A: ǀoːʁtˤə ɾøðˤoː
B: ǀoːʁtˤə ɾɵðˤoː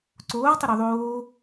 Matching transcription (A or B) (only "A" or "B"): A